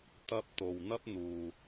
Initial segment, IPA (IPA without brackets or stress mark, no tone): t̪